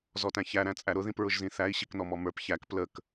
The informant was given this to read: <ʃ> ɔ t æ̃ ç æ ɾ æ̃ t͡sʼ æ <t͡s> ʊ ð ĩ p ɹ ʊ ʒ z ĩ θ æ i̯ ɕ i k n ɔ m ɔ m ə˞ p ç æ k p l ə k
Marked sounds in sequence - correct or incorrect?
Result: incorrect, incorrect

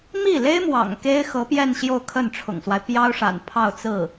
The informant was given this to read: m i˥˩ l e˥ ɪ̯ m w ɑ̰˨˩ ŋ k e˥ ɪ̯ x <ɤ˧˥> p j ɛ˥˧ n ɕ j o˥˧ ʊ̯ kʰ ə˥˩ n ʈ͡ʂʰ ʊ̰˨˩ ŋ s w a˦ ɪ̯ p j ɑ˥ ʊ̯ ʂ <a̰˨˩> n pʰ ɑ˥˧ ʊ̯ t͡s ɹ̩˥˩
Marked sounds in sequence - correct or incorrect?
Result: correct, correct

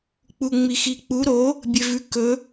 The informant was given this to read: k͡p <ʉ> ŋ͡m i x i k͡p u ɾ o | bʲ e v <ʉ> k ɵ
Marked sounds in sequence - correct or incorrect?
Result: incorrect, correct

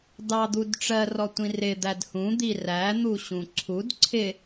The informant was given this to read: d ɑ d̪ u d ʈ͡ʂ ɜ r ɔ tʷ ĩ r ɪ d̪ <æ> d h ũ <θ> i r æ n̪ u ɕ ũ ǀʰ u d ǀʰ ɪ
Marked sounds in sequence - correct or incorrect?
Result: correct, incorrect

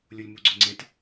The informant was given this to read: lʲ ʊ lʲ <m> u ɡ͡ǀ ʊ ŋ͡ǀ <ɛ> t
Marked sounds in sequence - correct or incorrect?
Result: correct, incorrect

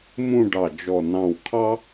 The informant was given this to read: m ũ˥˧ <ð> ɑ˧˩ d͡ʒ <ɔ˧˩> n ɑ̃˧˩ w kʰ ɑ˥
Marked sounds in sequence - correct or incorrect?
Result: incorrect, correct

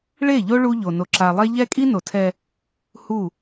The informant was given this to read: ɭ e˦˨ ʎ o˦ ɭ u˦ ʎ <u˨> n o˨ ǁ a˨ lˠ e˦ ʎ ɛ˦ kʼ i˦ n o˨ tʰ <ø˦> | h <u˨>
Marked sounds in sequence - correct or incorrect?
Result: incorrect, incorrect, incorrect

